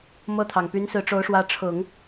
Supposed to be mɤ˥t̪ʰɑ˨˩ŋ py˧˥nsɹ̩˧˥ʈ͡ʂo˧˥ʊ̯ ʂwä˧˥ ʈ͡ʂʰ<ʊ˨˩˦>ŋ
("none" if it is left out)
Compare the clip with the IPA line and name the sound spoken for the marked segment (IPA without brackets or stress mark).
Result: ʊ˨˩˦